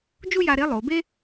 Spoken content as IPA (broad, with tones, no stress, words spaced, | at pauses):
d͡ʒu˥ja˧ɾe˧˥ lˠo˩˧be˥